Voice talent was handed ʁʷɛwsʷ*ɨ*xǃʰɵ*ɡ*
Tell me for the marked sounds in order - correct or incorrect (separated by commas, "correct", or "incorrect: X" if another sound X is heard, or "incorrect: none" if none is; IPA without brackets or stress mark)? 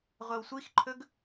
incorrect: i, correct